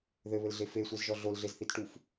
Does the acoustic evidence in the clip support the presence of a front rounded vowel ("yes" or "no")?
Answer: no